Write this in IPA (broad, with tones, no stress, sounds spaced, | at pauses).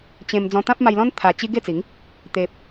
t͡ɕ ẽ˧ m d͡z ɔ̃˧ t̪ ã˦ p̚ m a˧ j l ɔ̃˦ n t̪ʰ a˧ t͡ɕ i˦ ɡ e˥˧ t͡s i˨˦ ŋ | t̪ e˨ p̚